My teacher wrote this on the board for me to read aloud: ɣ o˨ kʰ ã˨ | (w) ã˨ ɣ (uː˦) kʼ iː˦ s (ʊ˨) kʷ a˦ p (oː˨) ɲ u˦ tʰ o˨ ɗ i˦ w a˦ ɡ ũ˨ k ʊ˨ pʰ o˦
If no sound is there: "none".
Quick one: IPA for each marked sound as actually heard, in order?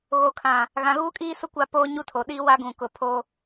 ɣ, uː˦, ʊ˦, oː˦

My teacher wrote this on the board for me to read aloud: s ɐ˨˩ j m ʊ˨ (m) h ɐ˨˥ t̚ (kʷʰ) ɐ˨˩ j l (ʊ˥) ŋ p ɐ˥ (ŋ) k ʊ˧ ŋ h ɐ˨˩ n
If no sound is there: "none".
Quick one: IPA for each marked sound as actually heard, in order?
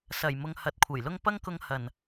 ŋ, kʷʰ, ʊ˥, ŋ

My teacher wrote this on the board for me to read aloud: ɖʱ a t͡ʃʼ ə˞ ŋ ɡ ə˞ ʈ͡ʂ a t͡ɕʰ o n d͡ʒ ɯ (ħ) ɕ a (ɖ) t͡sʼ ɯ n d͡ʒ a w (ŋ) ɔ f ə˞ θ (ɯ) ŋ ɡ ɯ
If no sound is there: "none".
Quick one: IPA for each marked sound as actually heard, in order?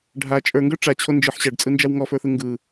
ħ, ɖ, ŋ, ɯ

